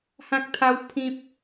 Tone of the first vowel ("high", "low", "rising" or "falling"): high